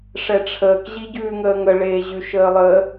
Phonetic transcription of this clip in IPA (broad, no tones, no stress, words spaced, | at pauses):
ʂɛʈ͡ʂʰəːk ʑiɟʉːŋəːŋə ɭeːʑʉʃəːlˠəː